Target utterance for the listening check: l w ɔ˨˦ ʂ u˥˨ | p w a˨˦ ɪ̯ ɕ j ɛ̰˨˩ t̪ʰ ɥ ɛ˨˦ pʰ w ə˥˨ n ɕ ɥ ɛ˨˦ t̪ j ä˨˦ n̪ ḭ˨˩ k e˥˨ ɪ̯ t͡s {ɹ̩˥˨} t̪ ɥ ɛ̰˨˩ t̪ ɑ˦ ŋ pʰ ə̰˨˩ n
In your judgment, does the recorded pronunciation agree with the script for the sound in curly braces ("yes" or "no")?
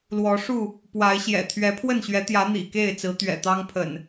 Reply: no